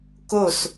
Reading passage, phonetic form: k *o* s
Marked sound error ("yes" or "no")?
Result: no